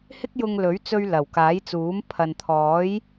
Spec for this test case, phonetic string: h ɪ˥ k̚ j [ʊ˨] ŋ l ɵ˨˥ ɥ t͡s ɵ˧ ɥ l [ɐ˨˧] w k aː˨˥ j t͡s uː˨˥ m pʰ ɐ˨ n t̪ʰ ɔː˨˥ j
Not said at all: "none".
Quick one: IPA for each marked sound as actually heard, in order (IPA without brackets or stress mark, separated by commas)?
ʊ˧, ɐ˨˩